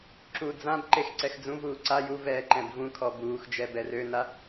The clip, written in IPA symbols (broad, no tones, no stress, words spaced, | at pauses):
ǁu d͡zãb ǃexǀɛxd͡zũvuː ǀa ju vɛːǃɛ̃bvũkʰɔ buːxd͡ʒɛ bɛrøna